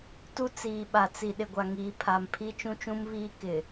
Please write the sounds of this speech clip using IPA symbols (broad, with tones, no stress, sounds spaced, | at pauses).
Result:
t u˦ t͡s iː˨ ɓ a˨ t͡s i˨ ɗ ɪ˨ ɡʷ a˨ ŋ iː˨ pʰ a˨ m pʰ i˦ t͡ʃ ũ˦ t͡ʃ ũ˦ m β iː˦ k ɪ˨